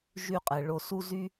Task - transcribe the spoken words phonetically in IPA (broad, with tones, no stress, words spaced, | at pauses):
ʒy˧qʼɛ˨ ɭo˨su˧ zy˦